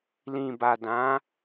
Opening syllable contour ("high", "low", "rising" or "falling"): low